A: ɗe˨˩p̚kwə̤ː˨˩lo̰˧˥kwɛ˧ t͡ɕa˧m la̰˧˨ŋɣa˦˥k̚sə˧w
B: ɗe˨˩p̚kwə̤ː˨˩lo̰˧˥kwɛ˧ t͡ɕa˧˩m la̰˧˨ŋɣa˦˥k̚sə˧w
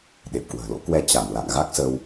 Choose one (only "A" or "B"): B